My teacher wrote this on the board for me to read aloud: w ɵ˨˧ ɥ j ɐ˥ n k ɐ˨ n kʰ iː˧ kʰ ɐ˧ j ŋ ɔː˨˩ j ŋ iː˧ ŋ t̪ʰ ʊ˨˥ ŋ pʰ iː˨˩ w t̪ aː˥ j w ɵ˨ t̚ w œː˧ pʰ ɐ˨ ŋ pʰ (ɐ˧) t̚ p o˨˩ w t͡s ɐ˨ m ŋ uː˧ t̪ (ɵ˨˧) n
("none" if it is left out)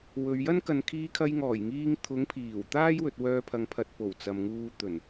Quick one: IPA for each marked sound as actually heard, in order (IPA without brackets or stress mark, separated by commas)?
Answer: ɐ˧, ɵ˨˩